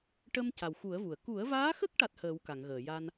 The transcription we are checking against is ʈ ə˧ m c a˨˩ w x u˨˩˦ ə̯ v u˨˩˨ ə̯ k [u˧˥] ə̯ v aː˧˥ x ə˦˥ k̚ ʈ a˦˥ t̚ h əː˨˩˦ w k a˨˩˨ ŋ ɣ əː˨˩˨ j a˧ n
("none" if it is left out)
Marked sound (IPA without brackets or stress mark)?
u˨˩˦